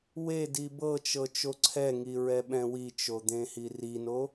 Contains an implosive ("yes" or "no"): yes